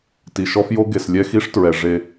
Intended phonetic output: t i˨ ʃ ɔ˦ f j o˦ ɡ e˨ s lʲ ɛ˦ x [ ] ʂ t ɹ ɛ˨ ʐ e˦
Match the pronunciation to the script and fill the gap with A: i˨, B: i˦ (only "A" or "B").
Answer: B